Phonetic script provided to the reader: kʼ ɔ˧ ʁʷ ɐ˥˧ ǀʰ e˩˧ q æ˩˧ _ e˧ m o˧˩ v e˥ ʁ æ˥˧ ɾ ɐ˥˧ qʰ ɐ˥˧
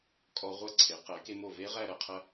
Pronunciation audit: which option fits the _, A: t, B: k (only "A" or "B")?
B